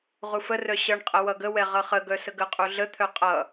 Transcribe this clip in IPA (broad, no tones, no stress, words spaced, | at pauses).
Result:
ʁufərœ ɕʌɳqʼə wʌɡəwɛ ʁʌχəɡœ səɡəqʼu ɮət̪ʰœ qʼʌ